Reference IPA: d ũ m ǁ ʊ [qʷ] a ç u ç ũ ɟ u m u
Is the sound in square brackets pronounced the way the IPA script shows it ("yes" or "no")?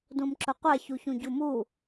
yes